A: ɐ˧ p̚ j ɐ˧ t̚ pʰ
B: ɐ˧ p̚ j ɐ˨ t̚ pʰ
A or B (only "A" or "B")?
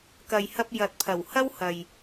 B